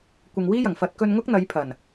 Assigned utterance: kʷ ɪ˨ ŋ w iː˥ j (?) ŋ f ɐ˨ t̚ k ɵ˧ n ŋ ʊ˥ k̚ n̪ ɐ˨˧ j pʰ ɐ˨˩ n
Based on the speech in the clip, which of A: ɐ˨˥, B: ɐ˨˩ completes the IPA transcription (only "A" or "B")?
B